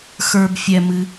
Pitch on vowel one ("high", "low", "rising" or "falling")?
low